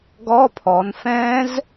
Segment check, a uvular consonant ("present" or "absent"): absent